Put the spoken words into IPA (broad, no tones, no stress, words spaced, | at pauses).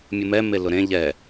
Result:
mʲumɛ melʊɾẽ ʎɛ